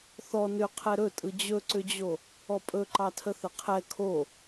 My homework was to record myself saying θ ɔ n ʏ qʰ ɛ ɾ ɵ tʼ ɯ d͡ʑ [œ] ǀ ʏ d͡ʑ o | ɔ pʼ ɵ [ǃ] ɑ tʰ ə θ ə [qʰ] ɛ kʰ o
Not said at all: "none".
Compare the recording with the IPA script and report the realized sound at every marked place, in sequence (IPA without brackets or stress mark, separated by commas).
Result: ɵ, ǃ, qʰ